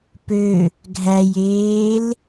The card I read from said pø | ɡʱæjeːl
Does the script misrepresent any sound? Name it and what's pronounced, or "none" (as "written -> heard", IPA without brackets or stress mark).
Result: none